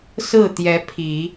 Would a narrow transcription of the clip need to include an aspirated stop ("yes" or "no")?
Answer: yes